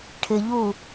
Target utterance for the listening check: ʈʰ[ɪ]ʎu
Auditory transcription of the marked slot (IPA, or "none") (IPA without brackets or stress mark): ɪ